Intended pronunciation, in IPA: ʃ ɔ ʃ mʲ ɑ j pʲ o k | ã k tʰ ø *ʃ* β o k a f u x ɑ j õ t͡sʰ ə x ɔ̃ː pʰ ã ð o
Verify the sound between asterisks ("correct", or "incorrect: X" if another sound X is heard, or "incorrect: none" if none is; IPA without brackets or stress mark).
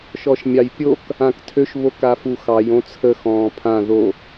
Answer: correct